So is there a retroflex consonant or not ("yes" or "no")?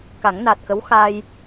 no